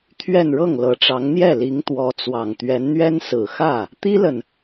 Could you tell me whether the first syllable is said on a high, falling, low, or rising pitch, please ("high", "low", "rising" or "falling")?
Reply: falling